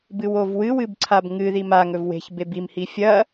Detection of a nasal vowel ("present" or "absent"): absent